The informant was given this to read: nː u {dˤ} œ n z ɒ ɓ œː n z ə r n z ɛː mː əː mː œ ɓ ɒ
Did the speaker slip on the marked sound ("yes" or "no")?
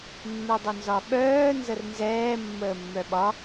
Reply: no